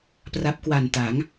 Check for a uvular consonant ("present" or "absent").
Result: absent